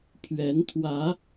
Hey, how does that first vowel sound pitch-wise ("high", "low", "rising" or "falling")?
rising